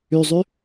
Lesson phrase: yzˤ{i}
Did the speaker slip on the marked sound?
yes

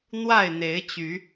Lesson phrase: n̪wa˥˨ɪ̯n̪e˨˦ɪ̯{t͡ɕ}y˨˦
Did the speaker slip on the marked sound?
no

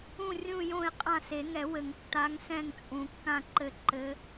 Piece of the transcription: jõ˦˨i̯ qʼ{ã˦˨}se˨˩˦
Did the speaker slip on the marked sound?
no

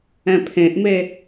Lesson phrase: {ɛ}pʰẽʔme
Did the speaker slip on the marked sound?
yes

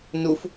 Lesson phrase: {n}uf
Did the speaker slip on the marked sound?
no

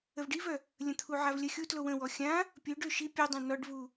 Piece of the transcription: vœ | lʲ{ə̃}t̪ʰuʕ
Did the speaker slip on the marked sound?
no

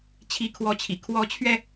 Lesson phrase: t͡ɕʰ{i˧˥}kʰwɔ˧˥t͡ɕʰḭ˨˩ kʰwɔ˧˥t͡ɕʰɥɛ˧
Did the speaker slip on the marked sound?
no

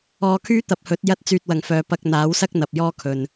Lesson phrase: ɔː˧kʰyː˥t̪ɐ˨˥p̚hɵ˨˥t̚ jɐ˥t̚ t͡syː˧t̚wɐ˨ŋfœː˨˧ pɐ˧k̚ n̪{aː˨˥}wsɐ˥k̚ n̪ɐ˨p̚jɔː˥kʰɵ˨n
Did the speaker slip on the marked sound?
no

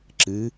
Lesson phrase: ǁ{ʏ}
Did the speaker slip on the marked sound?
yes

